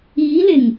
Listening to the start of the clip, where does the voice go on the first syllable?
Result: rising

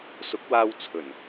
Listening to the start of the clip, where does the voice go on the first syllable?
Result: rising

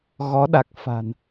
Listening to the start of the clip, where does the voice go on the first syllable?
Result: rising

